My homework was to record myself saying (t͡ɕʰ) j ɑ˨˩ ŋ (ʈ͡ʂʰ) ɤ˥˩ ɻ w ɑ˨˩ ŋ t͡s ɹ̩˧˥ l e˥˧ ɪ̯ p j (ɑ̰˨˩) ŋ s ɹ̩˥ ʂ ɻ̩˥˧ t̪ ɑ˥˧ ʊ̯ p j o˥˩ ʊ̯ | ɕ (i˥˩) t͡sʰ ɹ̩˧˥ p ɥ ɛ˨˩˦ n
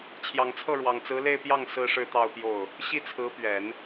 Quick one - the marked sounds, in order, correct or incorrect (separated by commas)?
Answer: correct, incorrect, incorrect, correct